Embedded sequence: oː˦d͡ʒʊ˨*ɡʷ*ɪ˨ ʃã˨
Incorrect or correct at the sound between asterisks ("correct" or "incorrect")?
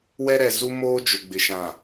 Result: incorrect